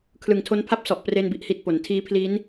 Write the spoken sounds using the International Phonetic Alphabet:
kʰ l ɯ˨˩ ŋ tʰ o˧ n pʰ a˦˥ p̚ s ɔ˨˩ ʔ p r e˥˩ n b i˥˩ ʔ h i˥˩ t̚ p o˨˩ n tʰ iː˦˥ pʰ l i˦˥ n

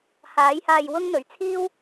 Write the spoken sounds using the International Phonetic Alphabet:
h aː˨˥ j h aː˧ j w ʊ˥ ŋ n̪ ɵ˨˧ ɥ t͡sʰ iː˥ w

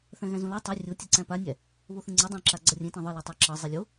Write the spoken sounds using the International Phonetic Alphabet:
θ æ̃ ɣ æ̃ z õ l a tˤ e rʲ o tʲ e ǀ æ̃ p a nʲ æ | β o θ ẽ ŋ͡ǀ e dˤ ẽ ǁ a ɡ͡ǀ ʌ rʲ ẽ t ẽ ðˤ ɤ l a tˤ æ ǁ ɤ zˤ e lʲ o

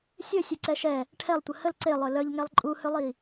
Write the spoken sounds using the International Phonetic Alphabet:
sʲ ə sʲ e ǀ ɛ ʃ ɛ | ʈʰ ɛ lˠ tʷ ə h ə l ǀ e lˠ œ l œ ʎ ŋ ɛ lˠ ǃʼ u h ø lˠ i

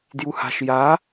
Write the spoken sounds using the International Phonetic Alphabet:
d j u h a̤ ʃ j a

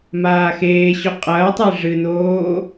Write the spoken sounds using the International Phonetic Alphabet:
m aː x eː ɕ ɵ qʼ ɐː tˤ e ʐ ɨ n oː

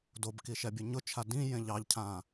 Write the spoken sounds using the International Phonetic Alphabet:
d o b k i ʃ ɛ bʲ ʊ ɲ ʊ t͡ʃʰ a d ĩ j ẽ ʎ ɑ ʎ cʰ ã

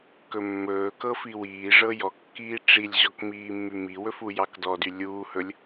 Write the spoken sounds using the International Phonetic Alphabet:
k ɵ mː ɵː k ɤ f i w iː ʐ ɤ j ɔ kː iː ʈ͡ʂ i lʲ ʑ ɔ k m iː mː y m i w ɵ f u j ɑ k d ɔ d y lʲ uː h ɵ lʲ

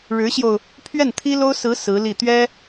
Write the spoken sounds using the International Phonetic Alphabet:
ɻ ɻ̩˧˥ ɕ j o˧ ʊ̯ | pʰ ɥ ɛ˥˩ n t̪ʰ i˥ l o˥ ʊ̯ s ɹ̩˧˥ s ɹ̩˧˥ l i˥˩ t̪ ɥ ɛ˥

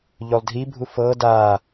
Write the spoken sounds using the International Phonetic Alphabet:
ʎ o lˠ dʱ i bʱ u f ɤ d a

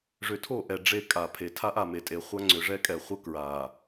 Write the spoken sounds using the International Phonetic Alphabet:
ʐ ʏ˨ tʰ o˦˨ ʔ ɛ˨ ɖ͡ʐ e˦ kʼ a˨ pʰ e˨ tʰ a˦ ʔ a˨ m e˨ tʼ e˨ χʷ a˦ ŋ͡ǀ ʏ˨ ʐ ɛ˦ kʼ ɛ˨ χʷ ə˦ k ɹ a˨

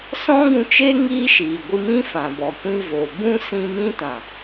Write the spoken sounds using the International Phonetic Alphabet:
s ɔ̃˦ ɡ ũ˧ t͡ʃ eː˦ ŋ iː˦ ʃ iː˨ ɡʷ ɨ˧ m ĩ˦ f ã˨ b ɔ˨ kʷ ĩ˧ v o˨ b ũ˦ s ĩ˧ m ĩ˦ t ã˨

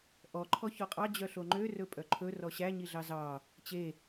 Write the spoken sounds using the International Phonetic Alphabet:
ʔ ɔ ǃʰ ɔ ç ɔ qʼ ɑ d͡ʑ œ ɬ o ŋ͡ǃ ø r ɵ pʼ œ ǃʰ ɵ r ɔ ɕ æ ɲ i ɮ ɑ z ɑ | t͡ɕ e

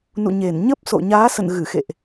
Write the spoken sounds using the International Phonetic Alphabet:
n ṵ˧˨ ɲ e˧˩ n ɲ ə˦˥ p̚ s o̰˧˨ ɲ aː˨˦ s ə̰˧˨ n ɣ ɨ˧˩ x ḛ˧˨ ʔ

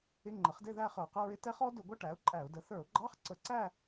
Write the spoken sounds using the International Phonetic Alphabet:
ɪ˧˥˧ ŋ͡ǃ ə˩˥ χ d ɪ˥˧ ð æ˥˧ χ ə˞˧˩˧ q ə˧˥˧ ɹ ɪ˦˥ t ɛ˦˥ χ ɔ˦˥ d ʊ˧˩˧ ɡʷ ʌ˥˧ ʈ æ˩˥ ʊ̯ ǃʼ æ˧˩˧ ʊ̯ d ə˩˥ θ ə˞˧˩˧ ʊ̯ ɡ͡ǃ ɑ˧˥˧ χ ǀ ə˧˩˧ ǀ æ˥˧

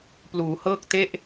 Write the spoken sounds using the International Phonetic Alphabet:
p l uː˩˦ h ɤː˥˩ k̚ t e˥˩ ʔ

